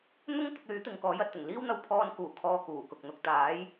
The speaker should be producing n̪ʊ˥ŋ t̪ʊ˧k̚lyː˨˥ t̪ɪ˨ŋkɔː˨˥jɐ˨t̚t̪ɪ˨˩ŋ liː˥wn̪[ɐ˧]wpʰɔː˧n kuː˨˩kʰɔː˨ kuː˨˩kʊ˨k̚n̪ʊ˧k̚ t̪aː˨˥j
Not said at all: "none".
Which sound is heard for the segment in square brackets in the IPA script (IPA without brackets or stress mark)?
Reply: ɐ˧